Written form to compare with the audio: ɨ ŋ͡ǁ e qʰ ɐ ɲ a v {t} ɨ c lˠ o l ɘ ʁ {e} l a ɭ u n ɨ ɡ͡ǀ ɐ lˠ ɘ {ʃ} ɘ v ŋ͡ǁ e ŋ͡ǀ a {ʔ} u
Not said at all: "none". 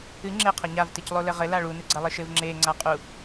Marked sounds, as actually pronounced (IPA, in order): t, ɘ, ʃ, qʼ

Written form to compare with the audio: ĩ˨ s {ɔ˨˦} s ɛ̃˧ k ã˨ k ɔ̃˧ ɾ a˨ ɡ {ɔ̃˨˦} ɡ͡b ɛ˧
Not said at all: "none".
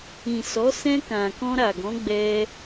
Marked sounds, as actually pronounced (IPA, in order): ɔ˨˦, ɔ̃˨˦

